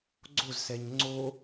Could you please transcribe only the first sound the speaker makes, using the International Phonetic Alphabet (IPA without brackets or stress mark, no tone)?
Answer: ɡ͡ǀ